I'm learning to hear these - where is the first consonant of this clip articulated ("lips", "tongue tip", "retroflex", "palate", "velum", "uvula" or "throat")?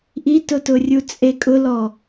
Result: throat